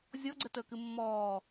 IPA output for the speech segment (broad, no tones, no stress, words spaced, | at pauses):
zʲɔɡ͡ǀətəːkɨ mːɔː